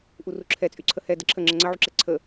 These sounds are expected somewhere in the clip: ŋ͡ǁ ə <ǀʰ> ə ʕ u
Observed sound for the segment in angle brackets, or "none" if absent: ŋ͡ǀ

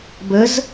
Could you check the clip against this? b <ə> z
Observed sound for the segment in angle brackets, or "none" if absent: ə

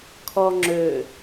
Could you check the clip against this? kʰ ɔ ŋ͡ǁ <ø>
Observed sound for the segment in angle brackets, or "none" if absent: ø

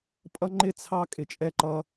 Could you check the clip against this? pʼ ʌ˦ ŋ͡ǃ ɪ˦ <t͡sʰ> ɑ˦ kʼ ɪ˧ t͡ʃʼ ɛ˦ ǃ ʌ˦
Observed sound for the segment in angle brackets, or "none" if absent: t͡sʰ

